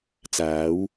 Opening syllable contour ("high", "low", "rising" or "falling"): rising